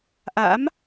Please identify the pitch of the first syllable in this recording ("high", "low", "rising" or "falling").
rising